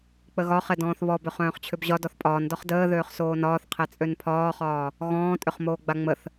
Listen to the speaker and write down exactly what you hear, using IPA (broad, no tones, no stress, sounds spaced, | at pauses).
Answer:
k͡p ə ɣ ɒ χ ɛ d ɔ̃ː θ β ɔ b ʏ χ œ̃ː χ t͡ɕʰ ʏ b ʑ ɒ d ɔ θ pʼ ɒː n d ɒ χ d əː ð øː χ s oː n ɒː θ qʰ ɛ t͡sʼ ø n pʰ ɒː χ ɒː | ɣ ɔ̃ː tʼ ʏ χ m oː ɡ͡b a ŋ͡m ə θ